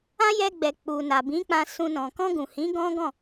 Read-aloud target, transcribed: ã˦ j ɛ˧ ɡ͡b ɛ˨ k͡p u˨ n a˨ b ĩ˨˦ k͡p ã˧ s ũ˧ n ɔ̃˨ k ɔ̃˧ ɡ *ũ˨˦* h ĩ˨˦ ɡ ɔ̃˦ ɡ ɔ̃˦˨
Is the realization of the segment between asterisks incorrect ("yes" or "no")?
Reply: yes